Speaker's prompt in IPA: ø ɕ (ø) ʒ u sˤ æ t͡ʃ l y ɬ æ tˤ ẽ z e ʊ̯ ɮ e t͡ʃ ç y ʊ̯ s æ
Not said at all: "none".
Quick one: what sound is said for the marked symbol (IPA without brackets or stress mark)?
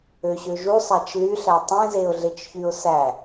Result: ø